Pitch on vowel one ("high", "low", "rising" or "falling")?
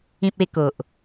high